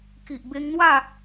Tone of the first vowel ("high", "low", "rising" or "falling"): low